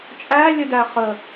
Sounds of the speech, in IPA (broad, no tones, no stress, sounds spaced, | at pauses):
t͡ʃʼ æ lʲ ə d æ χ ə